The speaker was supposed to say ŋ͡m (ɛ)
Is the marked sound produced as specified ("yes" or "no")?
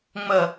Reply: no